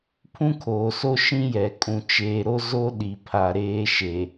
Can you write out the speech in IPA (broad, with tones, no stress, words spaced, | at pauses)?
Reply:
pʰũ˦kʰoː˨so˦ ʃĩ˦jɛ˨ kʼũ˨t͡ʃeː˨ɾo˦ zo˦ ɗi˨pʰa˨ɾeː˦ ʃe˨